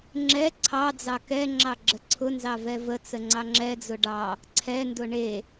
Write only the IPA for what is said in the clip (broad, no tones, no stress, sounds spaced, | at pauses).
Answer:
ŋ͡ǁ ɛ ǀʰ ɑ d͡z ɑ k ɛ ŋ͡ǁ ɑ ɡ͡ǁ ə ǀʰ ʊ n z ɑ v ɛ v ə t͡s ə ŋ͡ǀ ɑ ŋ͡ǁ ɛ d͡z ʊ ɖ ɑ | ǀʰ ɛ n d ʊ ɳ e